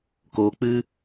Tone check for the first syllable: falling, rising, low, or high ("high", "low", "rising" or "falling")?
low